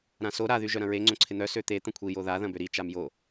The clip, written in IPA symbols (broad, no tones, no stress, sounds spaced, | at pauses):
ɾ ã s o ɾ a ð y ʒ œ ɾ ɐ̃ ɹ e ŋ͡ǀ õ ǀʰ ɪ n̪ œ s ø t̪ e t̪ ɐ̃ kʷʰ i j o ð a ð ɐ̃ b ø ɾ i t͡ʃ a m j o